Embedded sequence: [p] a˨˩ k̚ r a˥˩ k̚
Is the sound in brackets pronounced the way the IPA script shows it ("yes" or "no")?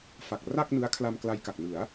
no